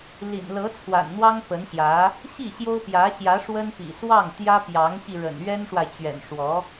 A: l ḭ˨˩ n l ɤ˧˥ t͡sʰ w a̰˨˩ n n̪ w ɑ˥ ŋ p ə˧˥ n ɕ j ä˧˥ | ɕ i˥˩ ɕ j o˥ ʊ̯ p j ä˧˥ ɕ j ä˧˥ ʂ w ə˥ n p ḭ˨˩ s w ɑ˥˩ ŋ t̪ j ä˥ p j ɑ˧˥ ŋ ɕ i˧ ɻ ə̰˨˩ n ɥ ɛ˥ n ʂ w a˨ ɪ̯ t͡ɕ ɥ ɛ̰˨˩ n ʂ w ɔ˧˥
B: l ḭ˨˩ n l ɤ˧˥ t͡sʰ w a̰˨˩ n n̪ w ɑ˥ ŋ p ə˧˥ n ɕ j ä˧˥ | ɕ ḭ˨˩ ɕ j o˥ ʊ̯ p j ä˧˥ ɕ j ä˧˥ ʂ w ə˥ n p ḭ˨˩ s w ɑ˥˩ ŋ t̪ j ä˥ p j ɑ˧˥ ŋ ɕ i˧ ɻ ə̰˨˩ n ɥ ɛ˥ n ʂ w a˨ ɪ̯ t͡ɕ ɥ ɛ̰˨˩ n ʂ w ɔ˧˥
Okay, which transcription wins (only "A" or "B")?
A